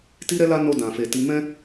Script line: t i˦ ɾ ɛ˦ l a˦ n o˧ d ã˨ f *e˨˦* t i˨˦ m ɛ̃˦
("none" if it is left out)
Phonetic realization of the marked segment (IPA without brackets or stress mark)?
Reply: e˨